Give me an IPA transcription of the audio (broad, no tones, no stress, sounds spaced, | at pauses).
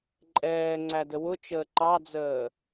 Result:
ǃʼ ɛː ŋ͡ǀ æ d ə w ʊ t͡ʃ əː ǃ ɑ d͡z əː